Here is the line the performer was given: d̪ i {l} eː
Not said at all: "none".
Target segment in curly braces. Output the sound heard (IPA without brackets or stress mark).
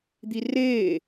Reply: r